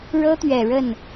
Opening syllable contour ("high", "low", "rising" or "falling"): high